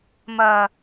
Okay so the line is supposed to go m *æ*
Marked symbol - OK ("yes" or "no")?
no